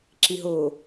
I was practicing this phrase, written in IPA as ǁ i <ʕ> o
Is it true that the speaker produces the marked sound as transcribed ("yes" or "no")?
no